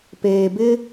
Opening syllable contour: low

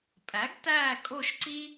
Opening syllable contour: rising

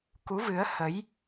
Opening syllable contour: rising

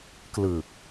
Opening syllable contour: low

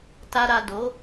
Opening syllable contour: low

